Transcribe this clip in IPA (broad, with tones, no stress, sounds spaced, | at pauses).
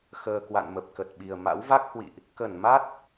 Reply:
x əː˨˩ k w a̰˧˨ n m ə˨˩ p̚ k ə˨˩ t̚ ɓ i˨˩ ə̯ m a̰˧˥ w v a˦˥ k̚ h w ḭ˧˨ ʔ | k ə˧˩ n m a˦˥ t̚